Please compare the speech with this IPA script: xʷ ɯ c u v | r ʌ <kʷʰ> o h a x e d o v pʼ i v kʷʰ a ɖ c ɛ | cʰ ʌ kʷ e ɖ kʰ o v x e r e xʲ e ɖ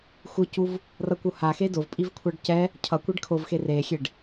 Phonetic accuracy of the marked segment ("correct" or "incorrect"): incorrect